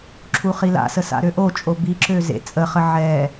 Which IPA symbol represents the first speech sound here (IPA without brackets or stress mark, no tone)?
ǁʰ